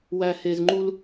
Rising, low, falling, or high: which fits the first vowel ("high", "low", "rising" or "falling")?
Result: high